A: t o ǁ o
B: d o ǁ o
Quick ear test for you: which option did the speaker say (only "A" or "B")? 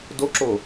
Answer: B